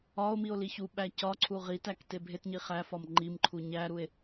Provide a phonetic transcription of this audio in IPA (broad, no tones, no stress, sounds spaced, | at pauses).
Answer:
ɒ o̯ m i o̯ l i ç u ɓ æ c ɒ ǀʰ u ʁ i t æ k t e bʱ e t ɲ i χ æ f ɒ m ŋ͡ǃ i m ǃʰ u ɲ æ ɾ u e̯